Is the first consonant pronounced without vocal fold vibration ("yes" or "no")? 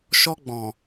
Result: yes